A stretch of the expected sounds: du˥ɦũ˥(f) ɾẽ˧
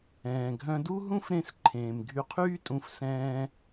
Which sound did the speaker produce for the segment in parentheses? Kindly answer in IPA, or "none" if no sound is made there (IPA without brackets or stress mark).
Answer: f